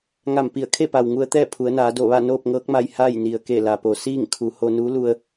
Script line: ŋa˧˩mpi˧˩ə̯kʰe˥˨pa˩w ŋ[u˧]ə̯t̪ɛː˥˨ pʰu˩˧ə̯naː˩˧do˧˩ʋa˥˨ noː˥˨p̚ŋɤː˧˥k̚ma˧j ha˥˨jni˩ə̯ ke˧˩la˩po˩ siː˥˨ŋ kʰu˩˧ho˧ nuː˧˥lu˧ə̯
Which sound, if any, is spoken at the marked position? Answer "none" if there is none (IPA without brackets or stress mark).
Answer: u˧